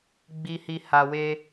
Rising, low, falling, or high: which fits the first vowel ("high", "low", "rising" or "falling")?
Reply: low